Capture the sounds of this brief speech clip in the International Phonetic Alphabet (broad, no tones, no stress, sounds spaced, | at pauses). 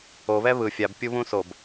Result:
o β ɛ β ɯ fʲ a b pʲ u β ũ s o b